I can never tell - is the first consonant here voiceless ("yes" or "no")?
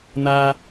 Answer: no